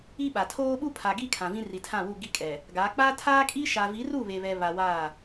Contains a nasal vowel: yes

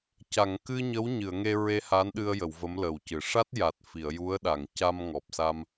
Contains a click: no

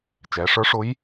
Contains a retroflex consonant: yes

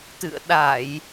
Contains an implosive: yes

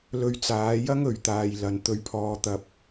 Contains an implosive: no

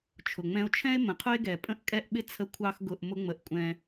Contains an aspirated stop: yes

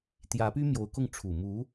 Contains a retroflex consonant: yes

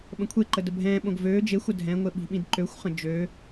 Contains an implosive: yes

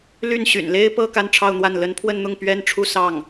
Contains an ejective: no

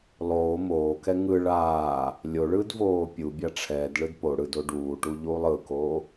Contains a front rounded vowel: no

